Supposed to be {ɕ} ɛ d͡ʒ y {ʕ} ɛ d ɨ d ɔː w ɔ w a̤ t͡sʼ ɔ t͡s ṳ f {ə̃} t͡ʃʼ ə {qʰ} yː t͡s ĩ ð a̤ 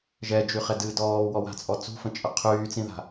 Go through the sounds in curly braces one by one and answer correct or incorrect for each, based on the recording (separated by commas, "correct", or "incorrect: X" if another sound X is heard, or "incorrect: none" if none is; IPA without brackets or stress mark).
incorrect: ʒ, incorrect: χ, correct, correct